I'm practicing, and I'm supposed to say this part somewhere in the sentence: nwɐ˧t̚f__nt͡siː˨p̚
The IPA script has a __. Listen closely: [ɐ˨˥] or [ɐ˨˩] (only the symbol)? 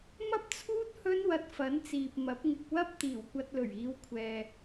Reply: ɐ˨˥